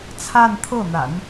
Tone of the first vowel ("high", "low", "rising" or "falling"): falling